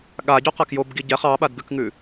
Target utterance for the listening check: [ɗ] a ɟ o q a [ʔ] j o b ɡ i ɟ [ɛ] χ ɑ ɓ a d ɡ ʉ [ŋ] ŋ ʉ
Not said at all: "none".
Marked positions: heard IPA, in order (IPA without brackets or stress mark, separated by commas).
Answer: ɠ, k, ɛ, k